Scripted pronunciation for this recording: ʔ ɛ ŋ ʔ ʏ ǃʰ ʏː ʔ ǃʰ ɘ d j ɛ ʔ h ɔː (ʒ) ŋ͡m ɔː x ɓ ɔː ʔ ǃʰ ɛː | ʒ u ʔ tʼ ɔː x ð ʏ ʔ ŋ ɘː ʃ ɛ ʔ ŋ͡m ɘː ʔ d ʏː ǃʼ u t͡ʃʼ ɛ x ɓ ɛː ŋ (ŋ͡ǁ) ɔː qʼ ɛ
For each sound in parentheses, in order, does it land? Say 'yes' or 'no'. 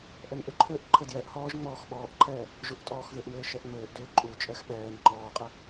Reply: yes, no

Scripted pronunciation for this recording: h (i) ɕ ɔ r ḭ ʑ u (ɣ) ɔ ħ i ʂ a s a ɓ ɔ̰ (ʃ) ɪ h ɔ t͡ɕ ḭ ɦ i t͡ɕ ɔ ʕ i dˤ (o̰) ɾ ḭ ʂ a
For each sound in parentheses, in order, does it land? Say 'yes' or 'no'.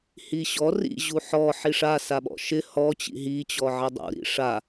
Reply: yes, no, yes, no

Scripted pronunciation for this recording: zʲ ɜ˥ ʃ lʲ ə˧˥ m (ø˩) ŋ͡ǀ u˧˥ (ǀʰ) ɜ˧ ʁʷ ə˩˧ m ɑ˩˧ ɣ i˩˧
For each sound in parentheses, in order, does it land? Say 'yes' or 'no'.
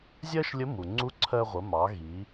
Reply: no, yes

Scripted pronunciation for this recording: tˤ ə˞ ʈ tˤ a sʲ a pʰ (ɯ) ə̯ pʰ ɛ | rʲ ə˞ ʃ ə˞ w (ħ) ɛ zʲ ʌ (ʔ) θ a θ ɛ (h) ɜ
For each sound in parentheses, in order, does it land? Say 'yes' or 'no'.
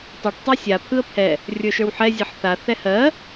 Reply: yes, yes, no, yes

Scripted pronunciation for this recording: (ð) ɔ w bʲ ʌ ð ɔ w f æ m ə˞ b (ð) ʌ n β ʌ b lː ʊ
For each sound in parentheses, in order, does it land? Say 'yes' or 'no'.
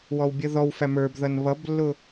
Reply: no, yes

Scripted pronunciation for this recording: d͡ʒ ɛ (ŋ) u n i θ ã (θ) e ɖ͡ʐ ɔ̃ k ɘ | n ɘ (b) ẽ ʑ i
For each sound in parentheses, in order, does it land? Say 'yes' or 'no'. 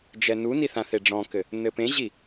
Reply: no, yes, no

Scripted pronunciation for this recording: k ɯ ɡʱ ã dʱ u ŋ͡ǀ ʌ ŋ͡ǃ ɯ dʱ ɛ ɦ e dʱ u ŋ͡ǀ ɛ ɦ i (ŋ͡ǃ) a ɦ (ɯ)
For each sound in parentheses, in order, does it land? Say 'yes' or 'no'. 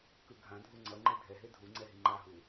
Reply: yes, no

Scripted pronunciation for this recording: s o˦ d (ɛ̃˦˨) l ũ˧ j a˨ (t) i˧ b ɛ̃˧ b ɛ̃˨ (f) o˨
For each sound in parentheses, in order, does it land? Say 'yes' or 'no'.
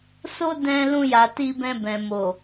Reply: no, yes, no

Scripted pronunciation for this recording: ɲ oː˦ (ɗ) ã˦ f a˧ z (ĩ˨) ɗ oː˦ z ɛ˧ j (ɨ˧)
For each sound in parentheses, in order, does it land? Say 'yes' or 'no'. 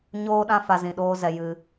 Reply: yes, yes, yes

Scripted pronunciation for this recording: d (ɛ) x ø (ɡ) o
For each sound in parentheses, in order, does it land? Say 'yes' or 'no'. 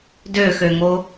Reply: no, no

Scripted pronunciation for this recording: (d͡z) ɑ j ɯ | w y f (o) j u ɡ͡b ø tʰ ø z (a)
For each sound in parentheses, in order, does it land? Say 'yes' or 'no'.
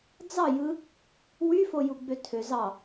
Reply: yes, yes, no

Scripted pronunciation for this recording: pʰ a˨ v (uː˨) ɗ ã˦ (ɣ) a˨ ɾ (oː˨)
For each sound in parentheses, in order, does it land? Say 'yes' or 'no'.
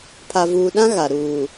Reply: yes, yes, no

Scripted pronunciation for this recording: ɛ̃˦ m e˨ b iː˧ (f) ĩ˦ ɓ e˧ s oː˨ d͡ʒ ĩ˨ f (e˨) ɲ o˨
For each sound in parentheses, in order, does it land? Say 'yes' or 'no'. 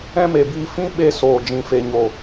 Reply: yes, yes

